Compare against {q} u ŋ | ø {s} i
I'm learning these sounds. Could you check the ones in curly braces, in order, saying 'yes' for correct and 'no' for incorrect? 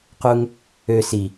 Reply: yes, yes

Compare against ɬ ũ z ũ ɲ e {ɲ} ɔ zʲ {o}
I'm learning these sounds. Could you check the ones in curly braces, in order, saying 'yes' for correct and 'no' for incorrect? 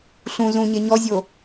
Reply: yes, yes

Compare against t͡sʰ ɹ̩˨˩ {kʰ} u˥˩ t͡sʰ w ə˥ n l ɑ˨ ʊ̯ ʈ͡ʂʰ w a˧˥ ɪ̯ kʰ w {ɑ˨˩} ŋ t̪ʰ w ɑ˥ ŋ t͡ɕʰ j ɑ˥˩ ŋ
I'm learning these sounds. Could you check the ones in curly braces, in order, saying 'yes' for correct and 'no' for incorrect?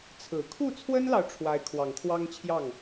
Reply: yes, yes

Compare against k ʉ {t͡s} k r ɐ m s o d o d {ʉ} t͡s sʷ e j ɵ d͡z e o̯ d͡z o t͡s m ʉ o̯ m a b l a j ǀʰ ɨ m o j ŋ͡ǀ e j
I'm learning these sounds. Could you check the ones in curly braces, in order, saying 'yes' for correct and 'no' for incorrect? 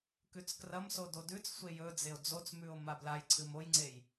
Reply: yes, yes

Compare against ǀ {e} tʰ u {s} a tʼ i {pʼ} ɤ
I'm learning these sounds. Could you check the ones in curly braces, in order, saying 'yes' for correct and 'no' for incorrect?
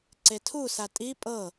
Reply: yes, yes, yes

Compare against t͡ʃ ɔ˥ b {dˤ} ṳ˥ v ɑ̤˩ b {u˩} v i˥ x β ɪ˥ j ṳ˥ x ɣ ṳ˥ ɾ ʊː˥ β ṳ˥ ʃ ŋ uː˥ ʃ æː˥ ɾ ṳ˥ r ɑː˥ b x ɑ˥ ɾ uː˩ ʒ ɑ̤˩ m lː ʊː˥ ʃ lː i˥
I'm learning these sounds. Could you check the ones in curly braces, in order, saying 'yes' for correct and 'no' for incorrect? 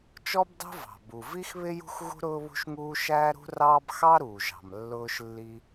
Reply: yes, yes

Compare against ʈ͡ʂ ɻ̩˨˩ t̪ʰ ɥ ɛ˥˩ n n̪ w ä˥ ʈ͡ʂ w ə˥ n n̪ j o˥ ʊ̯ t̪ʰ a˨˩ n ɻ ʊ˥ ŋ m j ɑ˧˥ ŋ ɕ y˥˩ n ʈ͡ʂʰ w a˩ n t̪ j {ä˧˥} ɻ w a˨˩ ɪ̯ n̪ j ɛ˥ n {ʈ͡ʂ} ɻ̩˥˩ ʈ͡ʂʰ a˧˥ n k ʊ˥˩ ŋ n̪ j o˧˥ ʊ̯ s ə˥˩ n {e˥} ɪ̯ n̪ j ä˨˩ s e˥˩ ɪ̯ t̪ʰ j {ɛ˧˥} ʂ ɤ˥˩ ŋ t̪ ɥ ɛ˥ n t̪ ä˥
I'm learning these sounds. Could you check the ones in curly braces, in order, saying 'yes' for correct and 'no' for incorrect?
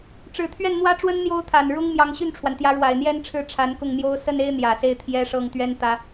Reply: yes, no, yes, no

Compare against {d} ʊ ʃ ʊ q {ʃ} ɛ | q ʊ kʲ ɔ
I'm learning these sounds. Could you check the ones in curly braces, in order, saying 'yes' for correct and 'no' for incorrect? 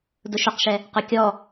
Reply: yes, yes

